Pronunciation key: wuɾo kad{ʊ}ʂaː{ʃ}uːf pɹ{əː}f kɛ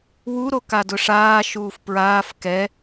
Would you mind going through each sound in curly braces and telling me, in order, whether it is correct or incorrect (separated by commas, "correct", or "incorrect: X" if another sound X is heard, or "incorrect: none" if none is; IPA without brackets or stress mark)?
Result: correct, correct, incorrect: aː